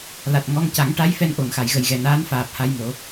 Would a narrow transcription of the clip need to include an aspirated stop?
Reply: no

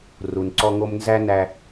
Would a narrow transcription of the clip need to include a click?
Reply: yes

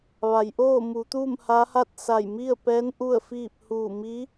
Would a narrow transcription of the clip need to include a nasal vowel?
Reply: no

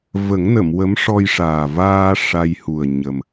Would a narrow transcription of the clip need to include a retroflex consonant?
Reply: yes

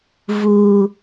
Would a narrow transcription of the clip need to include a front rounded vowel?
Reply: no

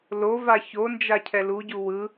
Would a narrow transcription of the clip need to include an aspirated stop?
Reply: yes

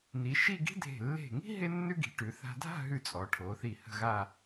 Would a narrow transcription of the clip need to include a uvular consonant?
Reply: no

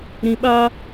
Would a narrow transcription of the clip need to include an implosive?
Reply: yes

